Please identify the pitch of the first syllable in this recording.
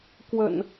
low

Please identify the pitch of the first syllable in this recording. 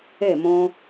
falling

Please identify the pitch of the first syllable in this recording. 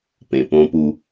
low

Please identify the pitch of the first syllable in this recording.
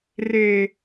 low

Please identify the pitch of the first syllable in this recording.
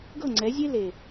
falling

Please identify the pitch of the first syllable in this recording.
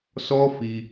high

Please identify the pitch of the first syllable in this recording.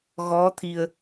rising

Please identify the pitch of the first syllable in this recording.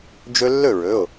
high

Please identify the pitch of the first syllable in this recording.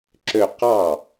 falling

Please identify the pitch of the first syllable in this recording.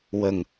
low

